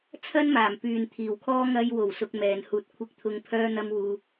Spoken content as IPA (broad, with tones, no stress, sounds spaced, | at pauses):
t͡sʰ ɐ˥ n m aː˨˩ m p yː˨ n t̪ʰ iː˨˩ w kʰ ɔː˥ ŋ ɐ˧ j w o˨˩ w s ʊ˧ k̚ m ɛː˨ n h uː˧ t̚ kʷʰ ɪ˧ k̚ t̪ʰ ʊ˨˧ ŋ pʰ œː˥ n̪ ɐ˥ m w uː˧